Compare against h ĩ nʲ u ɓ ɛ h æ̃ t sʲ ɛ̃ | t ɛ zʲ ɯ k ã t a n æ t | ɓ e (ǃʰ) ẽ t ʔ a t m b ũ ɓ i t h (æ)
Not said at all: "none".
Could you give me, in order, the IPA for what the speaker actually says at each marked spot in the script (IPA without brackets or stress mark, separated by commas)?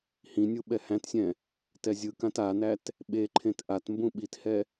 ǃʰ, ɛ